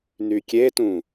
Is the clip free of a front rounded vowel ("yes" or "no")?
no